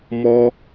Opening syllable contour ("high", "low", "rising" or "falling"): high